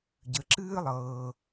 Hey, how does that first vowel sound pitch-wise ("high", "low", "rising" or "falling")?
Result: low